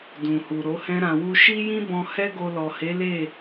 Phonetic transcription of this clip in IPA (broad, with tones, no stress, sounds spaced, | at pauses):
d ũ˨ h u˨ ɾ o˨˦ h ɛ̃˦ ɾ ã˧ w u˦ ʃ i˦ j ĩ˦ b ɔ̃˧ h ɛ˦ ɡ o˧ l ɔ˨ h e˨˦ l e˦˨